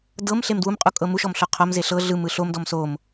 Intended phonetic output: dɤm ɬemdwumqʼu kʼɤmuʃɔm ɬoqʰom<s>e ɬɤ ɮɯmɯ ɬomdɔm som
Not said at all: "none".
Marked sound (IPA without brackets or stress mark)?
z